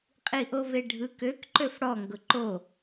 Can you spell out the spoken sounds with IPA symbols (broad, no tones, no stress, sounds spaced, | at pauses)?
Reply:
qʼ i ʔ o v e ɖʱ ɯ k ø k ǃ ø f ɽ ɔ ŋ ɡ ʊ ǃ o